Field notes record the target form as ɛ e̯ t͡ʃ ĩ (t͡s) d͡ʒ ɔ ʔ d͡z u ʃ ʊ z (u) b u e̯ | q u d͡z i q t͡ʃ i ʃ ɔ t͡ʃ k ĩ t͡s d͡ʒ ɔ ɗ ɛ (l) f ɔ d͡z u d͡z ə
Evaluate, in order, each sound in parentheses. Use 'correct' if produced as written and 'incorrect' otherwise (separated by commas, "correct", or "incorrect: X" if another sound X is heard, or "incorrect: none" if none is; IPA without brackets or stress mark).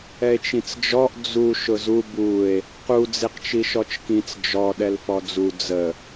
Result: correct, correct, correct